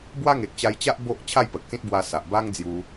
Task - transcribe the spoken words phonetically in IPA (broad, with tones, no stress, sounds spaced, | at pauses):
b w a˦ ŋ e˨ k̚ t͡ɕ a˧ j t͡ɕ a˦ ʔ b o˦ ʔ t͡ɕʰ a˥˧ j p ə˨ k̚ s ĩ˦ t̚ b w a˧ s a˨ ʔ b a˦ ŋ d͡z j u˧